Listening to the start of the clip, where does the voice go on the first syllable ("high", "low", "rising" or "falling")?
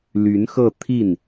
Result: rising